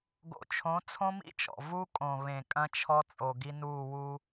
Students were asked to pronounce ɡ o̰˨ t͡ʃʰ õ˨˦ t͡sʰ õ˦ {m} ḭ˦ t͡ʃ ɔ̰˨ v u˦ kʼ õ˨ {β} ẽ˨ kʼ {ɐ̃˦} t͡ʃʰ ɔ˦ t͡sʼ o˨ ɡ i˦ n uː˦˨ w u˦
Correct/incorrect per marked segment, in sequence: correct, correct, correct

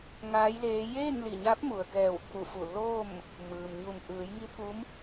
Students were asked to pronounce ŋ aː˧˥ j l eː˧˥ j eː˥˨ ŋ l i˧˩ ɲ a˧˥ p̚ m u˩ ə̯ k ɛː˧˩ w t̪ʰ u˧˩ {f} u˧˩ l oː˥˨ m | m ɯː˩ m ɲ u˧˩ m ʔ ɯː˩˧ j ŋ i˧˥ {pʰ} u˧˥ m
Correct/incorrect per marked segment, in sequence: correct, incorrect: t̪ʰ

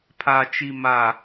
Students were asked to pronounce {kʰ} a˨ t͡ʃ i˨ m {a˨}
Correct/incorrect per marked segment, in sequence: incorrect: pʰ, correct

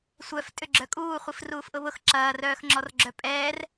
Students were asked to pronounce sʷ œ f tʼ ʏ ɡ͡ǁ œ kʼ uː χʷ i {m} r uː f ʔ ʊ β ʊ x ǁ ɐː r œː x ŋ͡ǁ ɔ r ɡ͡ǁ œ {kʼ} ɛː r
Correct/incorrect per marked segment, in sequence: incorrect: f, incorrect: pʼ

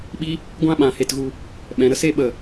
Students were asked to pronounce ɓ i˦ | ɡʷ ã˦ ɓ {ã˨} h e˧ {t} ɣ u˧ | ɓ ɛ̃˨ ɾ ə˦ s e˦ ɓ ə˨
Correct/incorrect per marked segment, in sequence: correct, correct

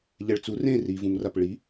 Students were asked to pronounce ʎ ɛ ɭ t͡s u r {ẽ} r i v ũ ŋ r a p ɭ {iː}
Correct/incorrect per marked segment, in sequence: correct, incorrect: i

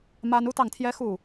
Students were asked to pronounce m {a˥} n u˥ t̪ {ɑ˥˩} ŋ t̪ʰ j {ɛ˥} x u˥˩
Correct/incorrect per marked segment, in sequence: correct, correct, correct

